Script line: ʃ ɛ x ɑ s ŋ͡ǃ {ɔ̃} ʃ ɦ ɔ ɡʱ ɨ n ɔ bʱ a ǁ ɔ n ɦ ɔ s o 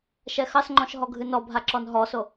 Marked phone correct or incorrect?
correct